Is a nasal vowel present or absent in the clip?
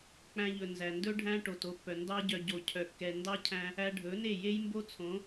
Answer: present